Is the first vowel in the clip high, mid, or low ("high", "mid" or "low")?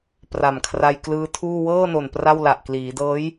low